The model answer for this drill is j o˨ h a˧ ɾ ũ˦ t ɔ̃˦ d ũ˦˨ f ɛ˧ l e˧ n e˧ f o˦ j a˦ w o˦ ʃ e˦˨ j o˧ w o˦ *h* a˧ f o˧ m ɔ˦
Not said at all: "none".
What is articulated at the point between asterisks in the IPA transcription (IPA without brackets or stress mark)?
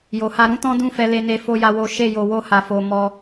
h